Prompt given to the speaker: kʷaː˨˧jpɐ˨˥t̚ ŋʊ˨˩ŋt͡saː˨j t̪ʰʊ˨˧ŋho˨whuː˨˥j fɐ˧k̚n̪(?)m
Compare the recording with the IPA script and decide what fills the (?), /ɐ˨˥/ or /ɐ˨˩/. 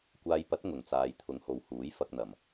ɐ˨˩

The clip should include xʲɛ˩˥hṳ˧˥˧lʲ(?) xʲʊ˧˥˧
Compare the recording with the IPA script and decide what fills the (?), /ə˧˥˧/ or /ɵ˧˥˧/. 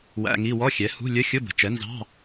ə˧˥˧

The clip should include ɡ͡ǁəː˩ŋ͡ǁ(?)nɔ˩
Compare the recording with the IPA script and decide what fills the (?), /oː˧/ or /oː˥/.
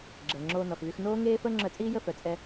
oː˧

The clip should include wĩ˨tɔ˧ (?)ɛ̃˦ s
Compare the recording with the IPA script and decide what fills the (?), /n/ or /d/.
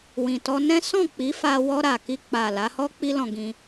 n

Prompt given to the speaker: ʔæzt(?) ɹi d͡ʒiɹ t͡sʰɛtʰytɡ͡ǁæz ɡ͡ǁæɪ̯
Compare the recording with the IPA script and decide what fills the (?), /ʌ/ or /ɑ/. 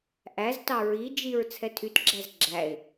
ɑ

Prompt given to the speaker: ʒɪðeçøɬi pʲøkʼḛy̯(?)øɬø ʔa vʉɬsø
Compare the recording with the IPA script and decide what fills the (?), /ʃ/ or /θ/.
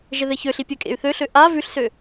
θ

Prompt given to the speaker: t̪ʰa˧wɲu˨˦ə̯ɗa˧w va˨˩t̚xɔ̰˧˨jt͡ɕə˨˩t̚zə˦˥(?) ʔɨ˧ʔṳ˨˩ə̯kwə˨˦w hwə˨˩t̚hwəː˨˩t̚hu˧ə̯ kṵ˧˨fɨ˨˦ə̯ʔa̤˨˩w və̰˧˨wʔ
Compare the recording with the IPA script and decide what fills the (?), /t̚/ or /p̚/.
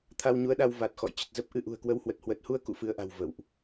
p̚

